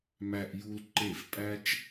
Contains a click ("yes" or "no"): yes